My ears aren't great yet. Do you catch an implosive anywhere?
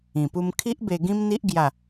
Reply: no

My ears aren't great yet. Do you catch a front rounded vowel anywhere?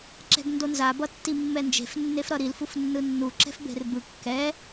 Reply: no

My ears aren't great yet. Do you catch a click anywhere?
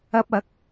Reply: no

